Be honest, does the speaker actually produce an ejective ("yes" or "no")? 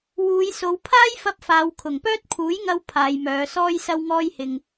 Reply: no